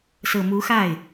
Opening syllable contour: low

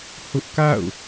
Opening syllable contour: high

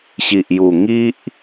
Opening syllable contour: low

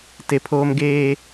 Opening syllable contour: low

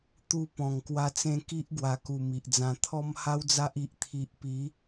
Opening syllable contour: falling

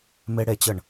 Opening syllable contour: high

